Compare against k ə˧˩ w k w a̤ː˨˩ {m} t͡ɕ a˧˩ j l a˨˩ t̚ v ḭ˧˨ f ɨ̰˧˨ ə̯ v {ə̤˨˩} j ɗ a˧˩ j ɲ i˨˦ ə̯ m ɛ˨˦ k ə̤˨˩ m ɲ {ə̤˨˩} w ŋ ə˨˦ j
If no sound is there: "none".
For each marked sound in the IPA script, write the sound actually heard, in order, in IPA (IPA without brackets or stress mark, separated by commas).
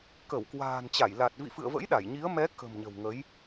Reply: n, ə̰˧˥, ə̤˨˩